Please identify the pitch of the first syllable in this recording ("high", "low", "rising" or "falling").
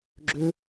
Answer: high